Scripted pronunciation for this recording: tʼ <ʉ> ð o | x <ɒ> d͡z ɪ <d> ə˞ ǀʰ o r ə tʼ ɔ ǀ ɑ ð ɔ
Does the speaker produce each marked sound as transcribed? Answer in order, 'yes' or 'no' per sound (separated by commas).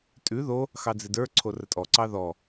yes, no, yes